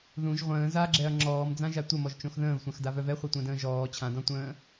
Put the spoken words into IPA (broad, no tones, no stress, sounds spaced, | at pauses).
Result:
ð ũ ʒ ʁʷ ə̃ː z a ɡ͡ǁ ɛ ɐ̯ ŋ͡ǁ ɔː m d͡z ã ʒ a tʷ ə m ɔ ʒ t͡ʃ õ x ð ə̃ː v sʷ ã x d a v œ v ɛ χʷ ɛ tʷ ə̃ː d ə̃ː ʒ ɔː t͡ɕʰ ã d ɔ̃ tʷ ə̃ː